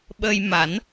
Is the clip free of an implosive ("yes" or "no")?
no